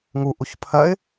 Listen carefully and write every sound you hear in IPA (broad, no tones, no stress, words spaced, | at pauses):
ŋu ʔuçpʰɜɪ̯